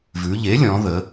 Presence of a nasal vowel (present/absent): present